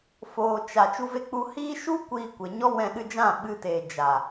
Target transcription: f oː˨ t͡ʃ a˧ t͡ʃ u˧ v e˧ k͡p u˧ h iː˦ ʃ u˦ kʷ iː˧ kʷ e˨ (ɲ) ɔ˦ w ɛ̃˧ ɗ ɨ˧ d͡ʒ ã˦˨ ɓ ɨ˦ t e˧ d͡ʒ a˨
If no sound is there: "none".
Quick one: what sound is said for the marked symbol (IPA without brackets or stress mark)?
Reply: ɲ